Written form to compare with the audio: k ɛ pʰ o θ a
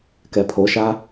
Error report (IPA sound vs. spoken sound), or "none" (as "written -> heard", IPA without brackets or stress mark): θ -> ʃ